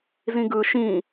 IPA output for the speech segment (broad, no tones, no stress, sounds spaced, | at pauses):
z ĩ ɡ ɯ ʃ ĩ